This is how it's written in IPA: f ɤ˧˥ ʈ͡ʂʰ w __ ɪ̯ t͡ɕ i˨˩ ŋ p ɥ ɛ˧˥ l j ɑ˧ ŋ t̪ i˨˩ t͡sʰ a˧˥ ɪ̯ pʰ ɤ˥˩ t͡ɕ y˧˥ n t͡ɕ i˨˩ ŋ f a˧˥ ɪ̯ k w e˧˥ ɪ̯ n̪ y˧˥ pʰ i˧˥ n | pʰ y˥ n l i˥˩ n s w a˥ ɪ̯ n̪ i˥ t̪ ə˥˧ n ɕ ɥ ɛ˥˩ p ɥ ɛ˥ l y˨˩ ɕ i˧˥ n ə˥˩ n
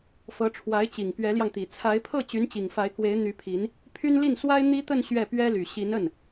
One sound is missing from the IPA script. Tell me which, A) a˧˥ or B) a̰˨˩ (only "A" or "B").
A